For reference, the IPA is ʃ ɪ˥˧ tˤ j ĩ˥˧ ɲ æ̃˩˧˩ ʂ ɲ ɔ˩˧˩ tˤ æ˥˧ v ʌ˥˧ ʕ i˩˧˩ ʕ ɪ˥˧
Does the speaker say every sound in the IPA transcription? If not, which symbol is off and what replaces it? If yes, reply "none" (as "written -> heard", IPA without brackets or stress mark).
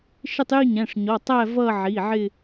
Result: ĩ˥˧ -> i˥˧